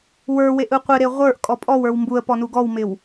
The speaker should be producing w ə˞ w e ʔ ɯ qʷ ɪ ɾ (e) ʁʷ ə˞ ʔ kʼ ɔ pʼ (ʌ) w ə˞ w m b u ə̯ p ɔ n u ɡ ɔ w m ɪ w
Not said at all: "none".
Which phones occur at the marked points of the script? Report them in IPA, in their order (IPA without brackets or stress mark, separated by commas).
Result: e, ɔ